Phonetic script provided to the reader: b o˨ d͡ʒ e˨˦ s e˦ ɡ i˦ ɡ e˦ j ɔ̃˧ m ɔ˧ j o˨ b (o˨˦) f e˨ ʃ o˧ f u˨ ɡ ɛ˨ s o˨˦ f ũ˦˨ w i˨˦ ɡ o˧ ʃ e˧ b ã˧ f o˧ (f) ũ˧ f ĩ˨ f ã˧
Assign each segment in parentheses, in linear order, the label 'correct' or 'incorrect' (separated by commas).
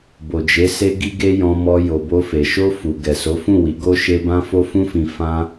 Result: incorrect, correct